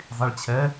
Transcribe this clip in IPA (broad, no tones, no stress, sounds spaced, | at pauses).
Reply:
zˤ i ɭ t͡ɕʰ ɛ